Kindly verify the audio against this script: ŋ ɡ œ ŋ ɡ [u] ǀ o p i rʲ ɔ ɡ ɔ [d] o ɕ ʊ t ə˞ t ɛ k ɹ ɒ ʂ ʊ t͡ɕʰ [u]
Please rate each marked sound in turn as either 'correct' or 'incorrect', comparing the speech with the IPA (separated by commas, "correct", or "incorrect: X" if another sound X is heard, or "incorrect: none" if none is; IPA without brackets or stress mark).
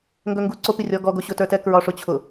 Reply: correct, incorrect: ɡ, incorrect: ʊ